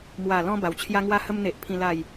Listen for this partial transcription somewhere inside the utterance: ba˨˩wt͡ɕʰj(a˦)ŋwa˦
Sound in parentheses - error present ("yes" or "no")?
no